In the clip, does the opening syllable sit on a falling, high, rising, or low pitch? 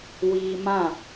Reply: high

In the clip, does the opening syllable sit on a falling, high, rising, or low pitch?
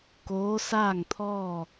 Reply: rising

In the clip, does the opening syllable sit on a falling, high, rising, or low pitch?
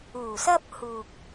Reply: low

